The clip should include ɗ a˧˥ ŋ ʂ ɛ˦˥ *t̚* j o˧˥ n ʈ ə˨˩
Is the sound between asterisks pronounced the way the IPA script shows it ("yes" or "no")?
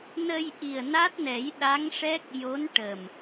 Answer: no